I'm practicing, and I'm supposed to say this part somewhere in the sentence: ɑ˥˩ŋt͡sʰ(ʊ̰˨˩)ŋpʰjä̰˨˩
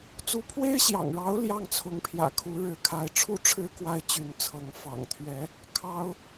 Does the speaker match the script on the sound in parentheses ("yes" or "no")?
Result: no